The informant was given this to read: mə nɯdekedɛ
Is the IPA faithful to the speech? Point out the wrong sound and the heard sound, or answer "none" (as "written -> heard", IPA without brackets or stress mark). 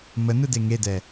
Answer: k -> ŋ